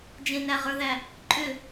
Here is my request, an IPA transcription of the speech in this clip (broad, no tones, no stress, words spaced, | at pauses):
d͡ʒẽnæʁə˞ðæ | ǃʼʏ